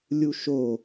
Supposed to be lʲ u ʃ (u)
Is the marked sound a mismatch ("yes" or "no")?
yes